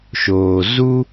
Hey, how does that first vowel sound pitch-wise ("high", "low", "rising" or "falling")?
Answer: low